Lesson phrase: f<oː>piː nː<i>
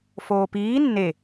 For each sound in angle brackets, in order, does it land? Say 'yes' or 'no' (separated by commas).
yes, no